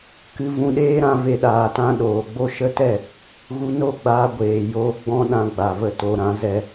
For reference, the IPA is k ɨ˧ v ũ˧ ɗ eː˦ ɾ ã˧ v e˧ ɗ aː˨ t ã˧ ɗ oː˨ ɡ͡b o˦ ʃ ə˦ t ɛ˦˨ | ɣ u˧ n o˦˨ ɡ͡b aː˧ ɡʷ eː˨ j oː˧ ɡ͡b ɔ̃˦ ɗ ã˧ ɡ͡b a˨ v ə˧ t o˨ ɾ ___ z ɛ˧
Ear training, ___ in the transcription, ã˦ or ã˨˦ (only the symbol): ã˨˦